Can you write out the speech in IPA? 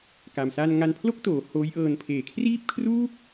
ka˧msaː˥˩n ŋa˧npʰlo˥˩k̚toː˩˦ hoː˦˥jʔɤː˧n pʰeː˨˩kʰriː˥˩p̚kʰru˥˩k̚

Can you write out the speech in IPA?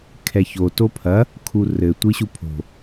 kʰɛço topʰɐ | kʰurɘ tʷiɕupʰo̤

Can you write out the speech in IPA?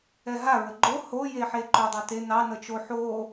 ɛɦa ɹəɡ͡ǃo ho jeħeǃɵ dˤɵte nɑ nət͡ʃo ħo

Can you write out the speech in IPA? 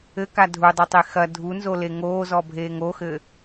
ɘka dʱudˤɘtˤe xɐ dʱunzole ŋoːzɔbʱeːŋ oxɘ

